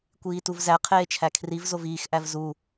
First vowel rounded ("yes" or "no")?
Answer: no